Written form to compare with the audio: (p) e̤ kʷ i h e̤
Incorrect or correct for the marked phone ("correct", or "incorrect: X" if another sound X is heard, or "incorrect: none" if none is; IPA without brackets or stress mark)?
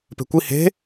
correct